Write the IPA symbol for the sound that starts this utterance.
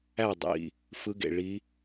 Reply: æ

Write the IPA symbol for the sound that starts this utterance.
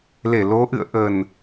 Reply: l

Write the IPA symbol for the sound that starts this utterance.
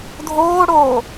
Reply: dʱ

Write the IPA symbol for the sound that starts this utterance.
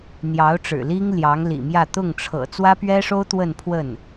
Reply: n̪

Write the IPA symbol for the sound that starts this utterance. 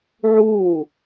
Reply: ʕ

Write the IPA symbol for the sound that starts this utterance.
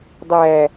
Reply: dˤ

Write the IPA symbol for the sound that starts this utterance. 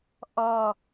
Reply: ʔ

